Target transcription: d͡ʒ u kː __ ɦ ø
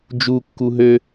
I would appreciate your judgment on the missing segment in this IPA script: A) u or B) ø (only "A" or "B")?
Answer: A